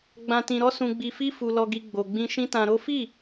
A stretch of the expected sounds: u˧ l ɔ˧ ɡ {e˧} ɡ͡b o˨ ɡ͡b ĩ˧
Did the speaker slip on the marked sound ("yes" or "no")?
yes